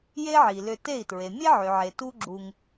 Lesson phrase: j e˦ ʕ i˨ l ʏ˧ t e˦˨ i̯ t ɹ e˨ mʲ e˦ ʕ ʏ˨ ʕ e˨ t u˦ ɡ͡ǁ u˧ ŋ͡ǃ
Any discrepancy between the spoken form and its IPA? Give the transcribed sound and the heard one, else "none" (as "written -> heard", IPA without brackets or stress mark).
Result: ŋ͡ǃ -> ŋ